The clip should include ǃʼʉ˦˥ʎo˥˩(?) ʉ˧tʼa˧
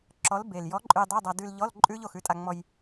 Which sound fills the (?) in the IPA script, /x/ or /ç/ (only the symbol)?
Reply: x